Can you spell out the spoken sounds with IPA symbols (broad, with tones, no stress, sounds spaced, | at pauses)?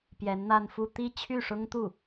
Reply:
p j ɛ˧˥ n n̪ a˥˧ n f u˥˧ t̪ i˥˧ t͡ɕʰ y˥˩ ʂ ʊ˥ ŋ t̪ u˥˩